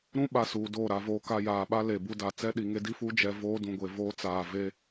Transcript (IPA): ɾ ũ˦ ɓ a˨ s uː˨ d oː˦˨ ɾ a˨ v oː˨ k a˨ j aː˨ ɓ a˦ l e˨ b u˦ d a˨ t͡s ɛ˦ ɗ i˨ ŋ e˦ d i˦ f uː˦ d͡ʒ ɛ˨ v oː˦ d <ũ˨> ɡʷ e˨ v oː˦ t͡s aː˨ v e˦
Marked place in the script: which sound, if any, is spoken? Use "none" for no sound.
ũ˨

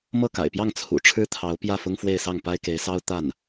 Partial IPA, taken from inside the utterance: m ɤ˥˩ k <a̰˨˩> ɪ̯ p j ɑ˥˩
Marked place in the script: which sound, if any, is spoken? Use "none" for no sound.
a̰˨˩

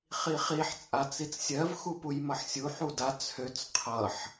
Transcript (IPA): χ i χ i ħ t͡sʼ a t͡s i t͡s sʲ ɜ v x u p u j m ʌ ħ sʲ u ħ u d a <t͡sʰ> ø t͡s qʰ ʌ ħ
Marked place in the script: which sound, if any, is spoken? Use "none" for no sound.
t͡sʰ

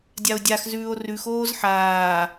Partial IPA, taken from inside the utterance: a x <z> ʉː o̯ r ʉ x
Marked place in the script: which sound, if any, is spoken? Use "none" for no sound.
z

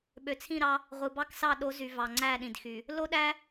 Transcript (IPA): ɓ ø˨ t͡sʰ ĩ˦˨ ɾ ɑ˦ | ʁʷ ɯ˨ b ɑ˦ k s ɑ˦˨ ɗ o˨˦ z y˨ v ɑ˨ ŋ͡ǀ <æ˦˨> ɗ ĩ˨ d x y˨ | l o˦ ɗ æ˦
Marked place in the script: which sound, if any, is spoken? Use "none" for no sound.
æ˦˨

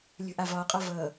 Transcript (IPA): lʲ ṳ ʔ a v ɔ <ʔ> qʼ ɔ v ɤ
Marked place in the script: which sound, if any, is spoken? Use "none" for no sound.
none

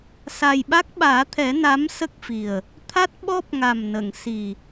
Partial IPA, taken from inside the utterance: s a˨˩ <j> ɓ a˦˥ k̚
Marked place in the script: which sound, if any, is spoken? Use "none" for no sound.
j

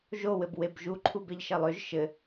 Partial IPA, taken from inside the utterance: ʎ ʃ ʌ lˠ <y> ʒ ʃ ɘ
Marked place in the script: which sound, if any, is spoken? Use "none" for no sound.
ø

